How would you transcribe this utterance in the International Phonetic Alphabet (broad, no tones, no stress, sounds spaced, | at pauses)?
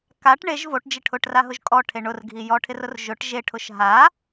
k a ʈ ɳ e ʒ v o ʈ d͡ʒ ɪ ʈʰ ʊ ʈ r a ɦ ʊ ʒ kʼ ɔ ʈʰ e ɳ ʊ r ɡʱ i j ɔ ʈʰ ɪ r ʊ r ʒ ʊ ʈ ʒ e ʈʰ ʊ ʃ ɦ a